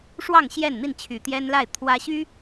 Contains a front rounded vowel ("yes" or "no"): yes